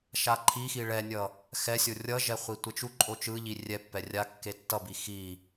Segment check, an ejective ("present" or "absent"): present